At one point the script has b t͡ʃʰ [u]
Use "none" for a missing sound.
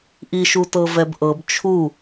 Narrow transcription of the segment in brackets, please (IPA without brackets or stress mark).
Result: u